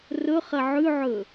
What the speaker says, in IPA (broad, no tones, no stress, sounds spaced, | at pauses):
r ɵ χ ɐ ʕ ʉ ʕ ɵ